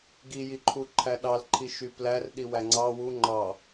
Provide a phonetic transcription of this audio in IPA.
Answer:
ɡ i j i ǃʰ u ǃʰ æ ɗ ɑ l ǃʰ i ʃ y p l æ r ɗ i w æ ŋ͡ǀ ɑ w u ŋ͡ǃ ɑ

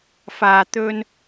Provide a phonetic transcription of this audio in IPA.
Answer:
f aː˨ t̪ ɵ˧ n

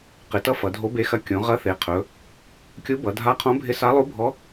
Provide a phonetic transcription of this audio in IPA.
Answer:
q ɪ˩˧ t ʌ˧˥ f ʌ˩˧ dʱ o˧˥ b e˧˥ x ɐ˧˥ kʲ õ˩˧ ʁ ɐ˧˥ θ e˩˧ qʰ ɵ˩˧ | kʲ u˧˥ b ʌ˩˧ dʱ a˧˥ qʰ õ˧˥ bʱ ɪ˧˥ s a˧˥ lˠ u˧˥ bʱ ɔ˧˥

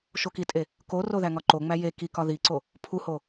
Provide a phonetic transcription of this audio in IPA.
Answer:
ʃ o k i tʼ e | k o r o ð æ ŋ ɒ ǃ o ŋ͡m æ j e k i k ɒ ð i ǀ o | pʰ u h o

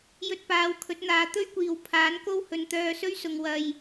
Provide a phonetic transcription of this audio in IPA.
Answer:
j ɵ˧ t̚ p aː˨˧ w kʰ ɵ˨˥ t̚ n̪ aː˨ t̪ ɵ˥ ɥ kʷ iː˨ w pʰ aː˨˥ n k o˥ w h ɵ˨˧ n t̪ œː˧ s ɵ˥ ɥ s ʊ˨ ŋ w ɐ˨ j

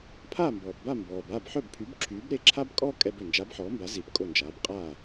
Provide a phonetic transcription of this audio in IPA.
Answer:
pʰ aː˥˩ m b ɔː˩ p b a˥˩ m b ɔː˩ b aː˥˩ b ħ œ˥˩ b pʰ y˩˥ b ǁʰ yː˩˥ b ɾ e˥˩ ǁʰ a˥ b kʼ ɔː˥ kʼ ɛ˧ b ø˩ n d͡ʒ a˩˥ b ħ ɔː˩˥ m b a˩˥ z i˩˥ p kʼ o˥˩ n d͡ʒ aː˩˥ b qʼ aː˥˩

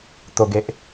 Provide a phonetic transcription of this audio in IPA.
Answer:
t̪ o˨˩ ɡ e˨ ʔ

